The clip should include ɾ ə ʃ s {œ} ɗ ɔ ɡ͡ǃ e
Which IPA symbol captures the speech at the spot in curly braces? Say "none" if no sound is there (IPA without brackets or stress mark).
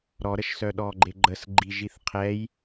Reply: œ